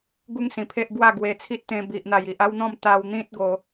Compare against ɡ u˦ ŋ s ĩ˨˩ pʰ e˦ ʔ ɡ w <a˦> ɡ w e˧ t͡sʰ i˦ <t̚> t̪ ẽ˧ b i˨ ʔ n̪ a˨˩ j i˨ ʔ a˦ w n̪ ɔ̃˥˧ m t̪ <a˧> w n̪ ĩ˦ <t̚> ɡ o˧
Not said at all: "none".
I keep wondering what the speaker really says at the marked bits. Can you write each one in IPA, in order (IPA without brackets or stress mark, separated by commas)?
a˥˧, t̚, a˧, t̚